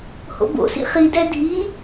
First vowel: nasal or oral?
oral